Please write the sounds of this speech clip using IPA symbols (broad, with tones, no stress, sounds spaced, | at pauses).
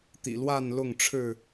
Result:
t̪ ḭ˨˩ l w a˥˨ n l ʊ˥˨ ŋ ʈ͡ʂʰ ɻ̩˥˨